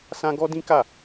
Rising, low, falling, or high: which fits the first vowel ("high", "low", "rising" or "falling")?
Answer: high